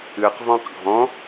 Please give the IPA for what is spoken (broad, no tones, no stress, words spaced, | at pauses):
ɨq vɔ̃qɡʱɔ̃